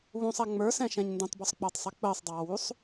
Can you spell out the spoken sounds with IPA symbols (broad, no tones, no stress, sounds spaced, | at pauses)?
β ũ sˤ æ ŋ͡m ə˞ s ɛ̃ ʃ ɛ̃ ɲ n d ũ tˤ b ɔ sˤ k͡p əː tˤ sˤ ɛ k͡p əː sˤ dˤ ɑː w u sˤ